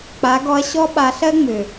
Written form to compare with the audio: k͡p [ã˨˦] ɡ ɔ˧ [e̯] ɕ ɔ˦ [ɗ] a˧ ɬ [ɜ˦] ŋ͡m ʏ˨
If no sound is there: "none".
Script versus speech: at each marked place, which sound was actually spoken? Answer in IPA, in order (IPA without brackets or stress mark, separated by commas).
a˨˦, ɐ̯, ɓ, ɜ˦